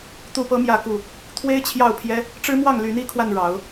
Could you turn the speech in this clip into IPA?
t̪ u˥˨ p ɤ˦ m j ä˥˨ k u˥˨ | t̪ʰ w e˦ ɪ̯ t͡ɕʰ j ɑ˥˨ ʊ̯ pʰ j ɛ˦ | ʈ͡ʂ ɻ̩˦ m w ɑ˥˨ ŋ l y˨˦ n i˨˦ kʰ w a˧ n ɻ ɑ˨˦ ʊ̯

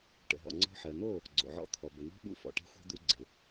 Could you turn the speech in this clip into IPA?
ʈ ə̰˨ ɦ ɔ̰˨ ŋ͡ǀ ɔ̤˧ ħ ɜ˨ n̪ o˦˨ | ɡ͡ǀ o̰˨ ʕ ɔ̰˧ t̪ʰ ɔ˨ b ə˨ n̪ ɔ̤˦ ɓ ṵ˧ f ɔ̰˨ ʈ e̤˦ xʷ e̤˦ d̪ u˧ ɡ͡ǀ ɪ˨

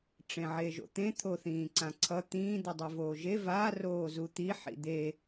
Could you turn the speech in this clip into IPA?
ʈ͡ʂ ẽ ʕ e ʒ o̰ t̪ ẽ t̪ʰ o θ ĩː ǀ ã ǀʰ ʌ t̪ ĩː d̪ u dˤ i v oː ʒ e v a r oː z u t̪ i ħ ḭ d̪ e

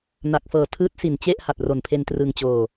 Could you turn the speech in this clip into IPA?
n a˨˩ k̚ f ɤː˨˩ tʰ ɯː˦˥ t̚ s i˨˩ n t͡ɕ e˥˩ ʔ h a˨˩ t̚ r o˨˩ n pʰ e˧ n t r ɯ˧ ŋ t͡ɕ oː˧

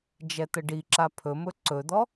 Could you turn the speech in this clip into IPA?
d͡ʒ ɛ t̪ ə ɖ i ǁ a pʰ ɵ m ɵ ǀ ɵ d̪ ɔ

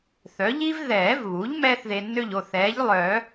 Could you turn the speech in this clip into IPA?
θ œ˩˥ ʎ i˥ v ð ɛː˨˩˦ v β u˩˥ ʎ m ɛː˥ θ ð e˧ nː ø˥˨ ʎ o˩˧˩ θ ɛː˩˥ ʎ lˠ œ˨˩˦

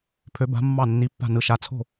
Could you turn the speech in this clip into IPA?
pʰ ø˧˥ b a̤˧˥ mː ɑ˥˨ nː i˧˥˧ pː a̤˥˨ n ɯ˧˥ ʃ a˧˥˧ t͡sʰ o̤˥˨

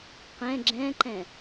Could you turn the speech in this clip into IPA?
q ɛ̃ ɡ͡ǁ ɛ̃ ǃ ɛ̃

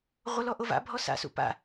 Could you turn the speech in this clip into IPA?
ʁʷ ə l ɔ ʔ o v a̰ bʱ ɔ s a̰ s ṵ p a̰

